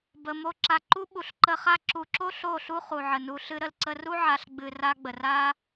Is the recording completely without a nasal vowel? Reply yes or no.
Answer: yes